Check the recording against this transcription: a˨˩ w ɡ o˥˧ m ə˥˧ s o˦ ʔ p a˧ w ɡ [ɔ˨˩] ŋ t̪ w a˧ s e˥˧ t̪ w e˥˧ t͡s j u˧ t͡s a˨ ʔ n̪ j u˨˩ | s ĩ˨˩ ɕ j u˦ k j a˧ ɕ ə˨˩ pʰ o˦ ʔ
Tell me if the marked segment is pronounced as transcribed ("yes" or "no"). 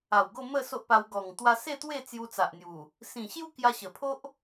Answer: yes